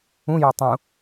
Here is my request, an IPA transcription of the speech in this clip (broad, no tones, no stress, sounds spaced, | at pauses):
ũ j o tˤ ũ